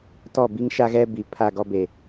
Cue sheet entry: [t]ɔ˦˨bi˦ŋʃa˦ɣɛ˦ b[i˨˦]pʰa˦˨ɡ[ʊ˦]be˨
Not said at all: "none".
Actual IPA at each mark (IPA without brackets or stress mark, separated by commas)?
t, i˨˦, ɔ˦